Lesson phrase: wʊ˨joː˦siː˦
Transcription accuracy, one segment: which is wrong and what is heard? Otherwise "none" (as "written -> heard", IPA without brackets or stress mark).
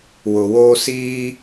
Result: j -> w